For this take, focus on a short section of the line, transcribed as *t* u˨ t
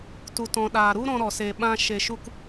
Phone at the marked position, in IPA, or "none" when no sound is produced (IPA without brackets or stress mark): t